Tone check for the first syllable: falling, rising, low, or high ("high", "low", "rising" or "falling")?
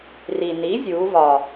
low